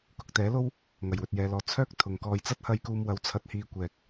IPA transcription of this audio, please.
k ʊ˨ k̚ t̪ ɛː˨˥ l o˥ w | ŋ ɐ˨˩ j w ɵ˨ t̚ j ɛː˨ l ɔː˨ t͡sʰ œː˥ k̚ t̪ʰ ʊ˨ ŋ k ɔː˧ j t͡s ɐ˥ t̚ h ɐ˧ j k uː˧ m w ɐ˨˥ w t͡sʰ ɐ˧ t̚ h iː˧ kʷ ɛː˨ k̚

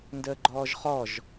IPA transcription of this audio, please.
n d əː ɡ͡ǃ ɔː ʒ χ ɔ ʒ

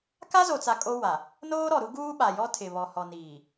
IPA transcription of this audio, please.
k a˦ z o˨ t͡s a˨ kʼ o˦ w a˨ | n oː˦ ɾ ɔ˨ ɾ u˦ ɡ uː˦ ɓ a˨ j ɔ˦ tʰ ɪ˨ β ɔ˨ h ɔ˨ n iː˨

